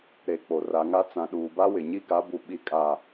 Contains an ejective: yes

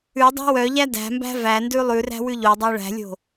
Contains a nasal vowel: no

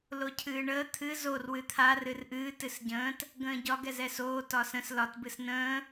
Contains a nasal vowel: yes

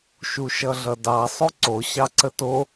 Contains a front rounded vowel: no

